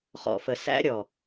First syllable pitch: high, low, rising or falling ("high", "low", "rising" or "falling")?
low